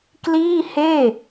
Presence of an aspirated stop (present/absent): absent